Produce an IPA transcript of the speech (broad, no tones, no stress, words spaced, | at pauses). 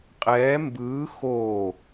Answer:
qʼɛː mbɯː xoː